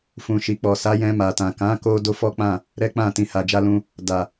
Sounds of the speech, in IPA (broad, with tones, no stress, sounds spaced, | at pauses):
f ũ˨ ʃ i˨ k͡p ɔ˨ s a˨˦ j ɛ̃˧ m a˨ t ã˨ k ã˨˦ k o˧ d o˦ f ɔ˦ k͡p ã˦˨ | ɾ ɛ˦ k͡p ã˦˨ t ĩ˨ h a˨ d͡ʒ a˧ l ũ˧ | d a˨